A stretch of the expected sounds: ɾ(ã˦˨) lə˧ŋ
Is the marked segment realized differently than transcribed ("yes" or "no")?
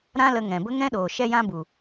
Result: yes